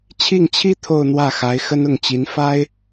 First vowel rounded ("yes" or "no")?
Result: no